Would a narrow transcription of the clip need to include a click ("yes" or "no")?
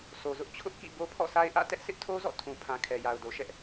no